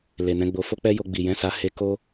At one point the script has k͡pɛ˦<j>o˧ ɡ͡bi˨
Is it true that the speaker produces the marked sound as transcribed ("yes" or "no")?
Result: yes